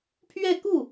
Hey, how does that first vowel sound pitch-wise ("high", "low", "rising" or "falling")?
falling